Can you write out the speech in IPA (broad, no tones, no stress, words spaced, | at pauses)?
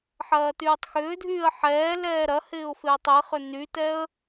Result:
ħɐːtyːtˤxʏːdʱyːə̯ ħɛːlɛː ɾɐhɪːʊ̯ fɪːtˤɪχʏ nytɛə̯